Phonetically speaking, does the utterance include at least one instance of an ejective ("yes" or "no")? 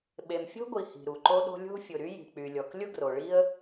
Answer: no